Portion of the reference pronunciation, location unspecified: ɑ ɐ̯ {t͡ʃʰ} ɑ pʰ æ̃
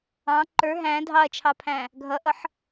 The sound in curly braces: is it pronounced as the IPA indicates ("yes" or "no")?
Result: yes